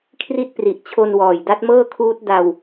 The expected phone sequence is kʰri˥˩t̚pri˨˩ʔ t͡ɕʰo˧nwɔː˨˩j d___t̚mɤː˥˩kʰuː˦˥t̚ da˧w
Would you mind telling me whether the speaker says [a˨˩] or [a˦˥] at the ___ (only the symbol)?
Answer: a˦˥